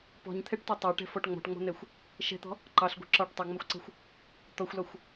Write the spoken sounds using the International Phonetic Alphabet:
p ɔ̤ ɲ t̪ʰ ɛ ʈ t ɒ tˤ ɜ ʈ ɛ̤ f ɔ ʈ ŋ͡m ɔ̤ ʈ ŋ͡m ɔ̤ n̪ ɛ xʷ | ʃ ɛ̤ t̪ ɔ̤ | ǃ ɑ ɬ ɡʷ ɛ̤ ǁ ɒ ʈ tˤ ɛ ŋ͡m ɒ xʷ ǀ ɛ̤ xʷ | t̪ ɔ xʷ l ɒ xʷ

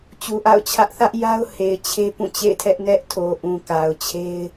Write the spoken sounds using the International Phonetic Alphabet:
t͡ɕ u˨ ʔ a̰˦˨ ʊ̯ t͡ɕʰ ä˦ ʔ θ ä˦ ʔ j a˦ ʊ̯ h e˨ ɪ̯ t͡ɕʰ e˦ p ũ˦˨ t͡ɕ ḛ˦˨ ɪ̯ tʰ ɛ˦ ʔ n ɛ˦ ʔ tʰ o˨ ʔ ũ˨ k a˨ ʊ̯ t͡ɕʰ e˦ ɪ̯

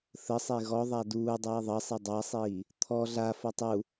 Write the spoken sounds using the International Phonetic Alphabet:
θ ə sˤ e ɣ ɔ ðˤ a d uː dˤ iː ðˤ ʌ sˤ e dˤ a sˤ iː | t̪ʰ ɔ ɮ a f ʌ tˤ u

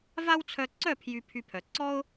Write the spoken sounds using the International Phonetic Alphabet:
v a˦ w t͡sʰ œ˧ ǀ œ˦˨ pʰ j y˨ pʰ y˧ pʰ œ˨ ǀ ɔ˦ ʊ̯

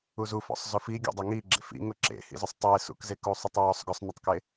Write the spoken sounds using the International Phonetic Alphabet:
u z u f ɔ̰ sˤ z ʊ f i ɡʲ ɔ̰ dˤ e ŋ i ɡ͡ǁ ḛ f ḭ ŋ ʊ ǁ ḛ h ḭ z ʊ sˤ tˤ e s ṵ k z e k u sˤ ʏ tˤ w ɔ sˤ ɡ ʊ sˤ n ʏ tˤ k e

